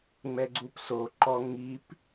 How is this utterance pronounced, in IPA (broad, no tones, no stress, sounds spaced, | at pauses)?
ŋ͡m ɛ ɡ͡ǀ u p s o ǃ ɔ ŋ i p